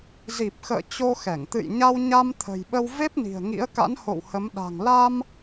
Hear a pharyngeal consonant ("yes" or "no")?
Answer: no